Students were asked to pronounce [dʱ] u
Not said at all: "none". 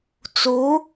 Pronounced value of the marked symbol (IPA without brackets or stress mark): t͡s